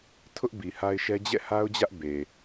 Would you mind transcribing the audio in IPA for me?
tʰʊ˦ʔ bi˨ha˦ɪ̯ʃɛ˦ d͡ʑɛ̰˦˨ha˦ʊ̯d͡ʑä˦ʔ be˨

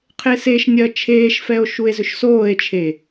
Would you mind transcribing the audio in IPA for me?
qʰeseʃnʲɜ t͡ʃʰeːʃfɛo̯ ʃue̯zʏʃsoːe̯t͡ʃʰe

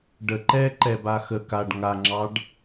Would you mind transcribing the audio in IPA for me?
ɖə ǃɛǃɛba xə kaɖ ŋaŋ͡ǁɑɖ

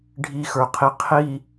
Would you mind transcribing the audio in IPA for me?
ɖʱixə˞qʰi qʰi

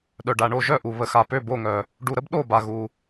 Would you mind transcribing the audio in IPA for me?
ɗœ˨ɖa˨ɳo˥˨ ʒœ˥˨ʔu˨ βə˨xa˨pø˥˨ bo˥˨ŋœ˨ | ɖu˨ɾə˦b ɗo˥˨ ba˨ɣu˨

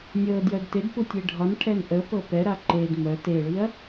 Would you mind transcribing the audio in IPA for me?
nʲɤ djœdted putʲeɖʱɒnʈʰɛn ʔəpɤ pɛɾa ǃed mœ teɭiɐ̯

